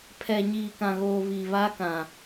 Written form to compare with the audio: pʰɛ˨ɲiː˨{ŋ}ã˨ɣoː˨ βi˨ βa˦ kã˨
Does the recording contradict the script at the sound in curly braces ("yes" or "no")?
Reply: yes